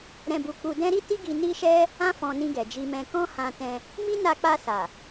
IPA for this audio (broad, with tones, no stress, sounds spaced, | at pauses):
ɾ ɛ̃˧ b u˧ k͡p u˧ d ɛ̃˦ ɾ i˦ t i˦ ɡ i˧ n i˦ ʃ ɛ˦ | ã˦ f ɔ̃˧ n ĩ˧ ɡ ɛ˨ d͡ʒ i˧ m ɛ̃˧ k ɔ̃˦ h ã˧ t ɛ̃˧ | m i˦ n a˧ k͡p a˧ s a˨